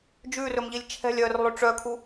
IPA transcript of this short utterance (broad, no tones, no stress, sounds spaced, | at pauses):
d͡ʒ ʉ r ɵ m ʎ i lʲ t͡ʃʰ ɛ̤ lʲ œː r lˠ ø ʈ͡ʂ œ kʰ u